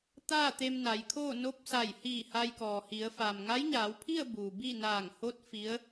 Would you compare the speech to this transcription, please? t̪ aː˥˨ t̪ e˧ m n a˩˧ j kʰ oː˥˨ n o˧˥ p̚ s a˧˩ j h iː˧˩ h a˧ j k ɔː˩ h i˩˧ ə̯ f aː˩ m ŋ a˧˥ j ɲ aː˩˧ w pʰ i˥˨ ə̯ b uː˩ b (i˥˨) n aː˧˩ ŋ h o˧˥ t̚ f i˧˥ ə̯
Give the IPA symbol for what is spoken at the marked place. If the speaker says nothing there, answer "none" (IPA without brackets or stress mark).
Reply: i˥˨